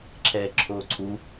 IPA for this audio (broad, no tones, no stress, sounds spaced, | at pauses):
ǁʰ ɛː ǁʰ oː ǀʰ u